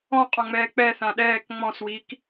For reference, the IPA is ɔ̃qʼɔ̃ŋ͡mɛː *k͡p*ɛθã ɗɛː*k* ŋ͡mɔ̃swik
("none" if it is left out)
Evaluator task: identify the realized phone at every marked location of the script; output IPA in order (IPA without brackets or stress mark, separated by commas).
k͡p, k